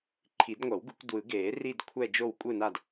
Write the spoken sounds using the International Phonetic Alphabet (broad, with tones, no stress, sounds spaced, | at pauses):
ǃʰ i˨˩˦ d ŋʷ ʌ˨˩˦ w ɡ u˨˩˦ kʷ d w ɯ˨˩˦ ɡ eː˨˩˦ r i˦˨ d kʷʰ ɛ˦˨ d͡ʒ o˦˨ w kʷʼ ɯ˦˨ n a˦˨ d